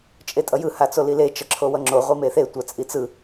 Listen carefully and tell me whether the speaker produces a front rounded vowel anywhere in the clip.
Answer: no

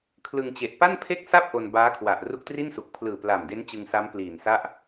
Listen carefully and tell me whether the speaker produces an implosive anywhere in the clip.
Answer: no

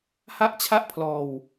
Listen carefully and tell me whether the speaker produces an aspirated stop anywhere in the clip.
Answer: yes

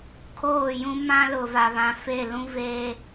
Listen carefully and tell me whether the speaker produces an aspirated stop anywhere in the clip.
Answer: yes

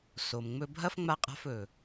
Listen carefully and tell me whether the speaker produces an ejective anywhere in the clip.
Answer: yes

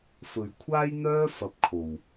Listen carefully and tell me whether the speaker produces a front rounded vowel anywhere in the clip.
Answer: yes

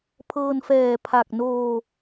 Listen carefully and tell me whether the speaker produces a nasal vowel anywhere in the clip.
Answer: no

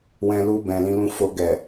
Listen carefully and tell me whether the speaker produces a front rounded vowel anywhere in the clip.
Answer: no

